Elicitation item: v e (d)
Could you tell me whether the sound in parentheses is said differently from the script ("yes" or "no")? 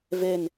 yes